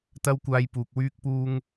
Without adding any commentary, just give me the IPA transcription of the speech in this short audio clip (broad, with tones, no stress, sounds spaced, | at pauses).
t̪ ɐ˥ w kʷ aː˧ j p uː˨ k̚ w yː˥ k̚ p uː˥ ŋ